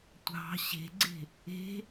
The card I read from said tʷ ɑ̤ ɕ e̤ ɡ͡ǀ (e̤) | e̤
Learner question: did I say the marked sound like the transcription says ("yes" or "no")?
yes